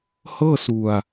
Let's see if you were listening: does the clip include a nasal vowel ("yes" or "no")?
no